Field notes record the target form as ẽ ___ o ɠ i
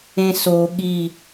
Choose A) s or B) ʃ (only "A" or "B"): A